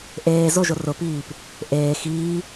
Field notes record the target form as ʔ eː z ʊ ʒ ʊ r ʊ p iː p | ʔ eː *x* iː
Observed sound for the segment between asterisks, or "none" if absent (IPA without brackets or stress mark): x